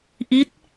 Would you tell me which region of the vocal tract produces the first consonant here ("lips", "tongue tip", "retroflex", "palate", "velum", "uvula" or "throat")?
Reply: throat